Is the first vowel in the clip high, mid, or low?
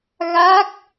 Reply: low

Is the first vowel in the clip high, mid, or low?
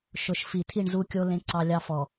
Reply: high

